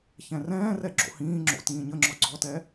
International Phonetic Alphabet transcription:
çɛ̃rɛ̃ːrɛ ɡ͡ǁo̰hĩːŋ͡ǁo̰ tĩːɲəŋ͡ǁɔ ɡ͡ǀɔtɛ

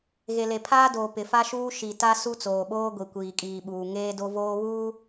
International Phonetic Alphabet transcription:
ɣe˨le˨pʰaː˦doː˨ pɪ˨fa˦ʃuː˦ ʃi˨ta˦ su˦t͡soː˨ɓoː˦ ɡʷi˨kʷiː˨kʼiː˨ɓuː˨ ŋeː˦do˦voː˦βuː˦

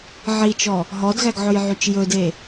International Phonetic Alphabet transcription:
ʕit͡ʃɔ | ɦɔdɣæɡʕɵjʕyt͡ʃ jɵde

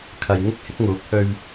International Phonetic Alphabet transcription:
kʰɐ˨j ŋɪ˥k̚hɪ˨˥k̚ŋuː˨˥k̚ hɵ˧ɥ

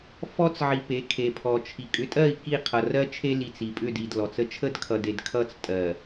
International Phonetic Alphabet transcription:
fɔ˦t͡sʕi˨ pe˨˦kʰe˨ pʰɔ˨t͡ʃʰi˨ kʼʏ˨˦tʼɜ˦˨i̯ ki˦˨qʰʌ˨rɜ˦ t͡ʃʰe˦li˨t͡s i˨pʼʏ˦˨di˨d lɔ˨t͡sə˦ t͡ʃʰə˦dkʰʌ˨de˨d kʰʌ˦˨t͡stʼɜ˨

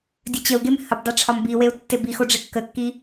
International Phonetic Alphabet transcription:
dʲɘt͡ɕəu̯ɡem həbdˤe ʈ͡ʂʰɒmbiweu̯ tːebixo ɖ͡ʐekːəkːi

